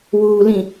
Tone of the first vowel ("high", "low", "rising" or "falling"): low